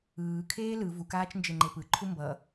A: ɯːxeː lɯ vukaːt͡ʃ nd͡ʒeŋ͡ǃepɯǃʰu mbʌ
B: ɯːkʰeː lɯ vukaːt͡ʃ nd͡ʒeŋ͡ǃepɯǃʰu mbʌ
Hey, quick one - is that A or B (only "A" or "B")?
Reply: B